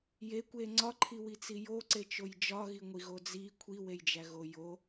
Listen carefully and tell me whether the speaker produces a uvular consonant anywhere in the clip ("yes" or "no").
no